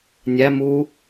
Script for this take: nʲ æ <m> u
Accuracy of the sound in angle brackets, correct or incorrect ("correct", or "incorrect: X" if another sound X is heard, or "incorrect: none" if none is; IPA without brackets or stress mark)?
correct